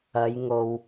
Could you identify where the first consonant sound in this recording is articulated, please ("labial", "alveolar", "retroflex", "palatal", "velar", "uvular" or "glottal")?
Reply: palatal